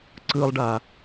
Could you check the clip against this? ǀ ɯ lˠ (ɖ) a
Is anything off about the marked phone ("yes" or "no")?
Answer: no